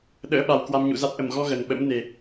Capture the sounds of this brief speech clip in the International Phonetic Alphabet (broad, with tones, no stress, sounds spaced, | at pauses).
ɗ ə̰ː˧˥ ɓ a˨˩ w k w a˧ m ɲ ṵ˧˨ z a˦˥ t̚ ʔ ə˧˩ m ɣ ɔ˧ ɣ ə˨˩ n ɓ ə̰˧˥ m n e˨˩